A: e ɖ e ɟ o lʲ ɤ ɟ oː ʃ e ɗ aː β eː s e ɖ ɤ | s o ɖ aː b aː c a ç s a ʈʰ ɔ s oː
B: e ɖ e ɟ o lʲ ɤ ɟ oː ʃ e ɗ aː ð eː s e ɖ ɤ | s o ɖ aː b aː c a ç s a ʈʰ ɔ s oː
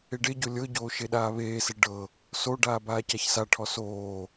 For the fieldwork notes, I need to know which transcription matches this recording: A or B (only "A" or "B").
A